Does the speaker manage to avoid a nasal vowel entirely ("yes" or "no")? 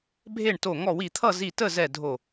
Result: yes